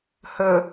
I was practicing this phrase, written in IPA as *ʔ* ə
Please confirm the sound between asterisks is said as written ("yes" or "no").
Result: no